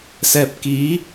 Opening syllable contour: low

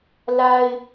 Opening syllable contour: high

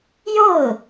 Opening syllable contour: falling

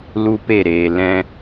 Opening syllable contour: high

